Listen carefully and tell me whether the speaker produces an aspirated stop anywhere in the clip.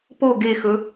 no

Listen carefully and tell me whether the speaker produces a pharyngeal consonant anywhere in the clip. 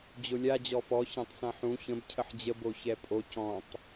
yes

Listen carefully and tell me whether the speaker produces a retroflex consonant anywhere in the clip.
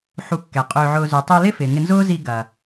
no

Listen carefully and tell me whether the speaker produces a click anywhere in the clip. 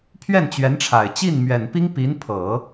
no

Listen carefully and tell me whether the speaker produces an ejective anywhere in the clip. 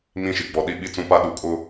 yes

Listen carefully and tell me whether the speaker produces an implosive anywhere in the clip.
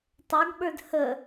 yes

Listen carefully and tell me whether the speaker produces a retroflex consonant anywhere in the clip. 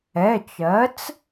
no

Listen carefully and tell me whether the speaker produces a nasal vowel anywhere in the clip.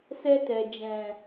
yes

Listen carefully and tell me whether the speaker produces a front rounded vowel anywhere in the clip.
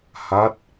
no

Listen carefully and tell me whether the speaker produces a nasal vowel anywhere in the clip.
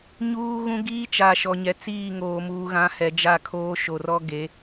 yes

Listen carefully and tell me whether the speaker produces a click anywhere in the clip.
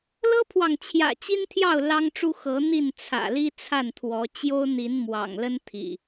no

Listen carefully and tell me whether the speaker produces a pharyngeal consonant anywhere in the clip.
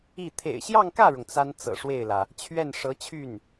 no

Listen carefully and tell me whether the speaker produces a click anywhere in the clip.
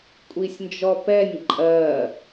yes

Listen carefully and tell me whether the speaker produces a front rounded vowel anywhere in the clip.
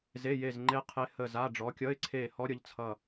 no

